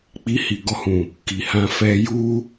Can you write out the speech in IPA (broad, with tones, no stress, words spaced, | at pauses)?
k͡pi˧hi˨ɡɔ˧hũ˨ | ki˨hã˧fɛ˧ ju˦